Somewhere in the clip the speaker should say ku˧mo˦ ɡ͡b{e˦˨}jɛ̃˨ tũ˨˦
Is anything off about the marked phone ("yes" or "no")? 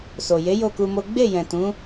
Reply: no